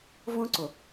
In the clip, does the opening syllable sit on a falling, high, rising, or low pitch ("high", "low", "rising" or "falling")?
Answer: high